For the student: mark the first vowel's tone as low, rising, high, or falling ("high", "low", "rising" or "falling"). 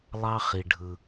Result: high